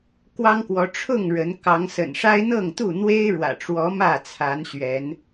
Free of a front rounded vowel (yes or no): yes